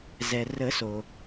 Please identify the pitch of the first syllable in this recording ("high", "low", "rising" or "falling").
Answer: low